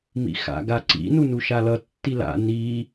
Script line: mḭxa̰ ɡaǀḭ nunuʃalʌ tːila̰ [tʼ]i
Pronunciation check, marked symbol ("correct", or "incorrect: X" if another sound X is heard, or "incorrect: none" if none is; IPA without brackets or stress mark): incorrect: n